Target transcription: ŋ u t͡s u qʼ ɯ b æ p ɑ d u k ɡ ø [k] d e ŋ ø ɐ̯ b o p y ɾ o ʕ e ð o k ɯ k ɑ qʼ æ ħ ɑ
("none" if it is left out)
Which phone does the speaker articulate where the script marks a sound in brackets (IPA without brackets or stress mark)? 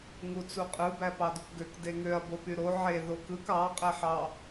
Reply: k